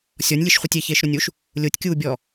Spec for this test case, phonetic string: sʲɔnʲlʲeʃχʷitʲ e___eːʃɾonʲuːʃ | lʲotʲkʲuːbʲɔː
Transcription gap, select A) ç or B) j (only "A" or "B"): A